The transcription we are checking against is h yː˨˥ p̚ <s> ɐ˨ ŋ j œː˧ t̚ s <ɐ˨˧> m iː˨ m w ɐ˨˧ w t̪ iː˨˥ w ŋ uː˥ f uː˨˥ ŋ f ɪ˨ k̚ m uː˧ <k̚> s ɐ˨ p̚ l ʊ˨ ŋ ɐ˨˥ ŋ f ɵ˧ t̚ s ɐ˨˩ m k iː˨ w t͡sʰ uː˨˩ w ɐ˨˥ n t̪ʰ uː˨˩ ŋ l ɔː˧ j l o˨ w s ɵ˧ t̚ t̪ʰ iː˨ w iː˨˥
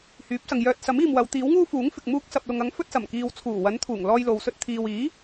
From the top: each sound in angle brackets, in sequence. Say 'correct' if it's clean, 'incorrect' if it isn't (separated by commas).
correct, incorrect, correct